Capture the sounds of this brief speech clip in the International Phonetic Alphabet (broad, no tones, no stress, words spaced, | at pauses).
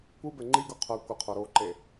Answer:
kʷɯbɛ ŋ͡ǃiɡo qʰœ kʷəqʰoɾoːǃe